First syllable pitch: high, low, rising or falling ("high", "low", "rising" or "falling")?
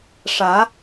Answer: rising